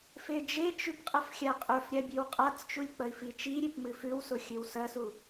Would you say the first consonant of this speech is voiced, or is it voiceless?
voiceless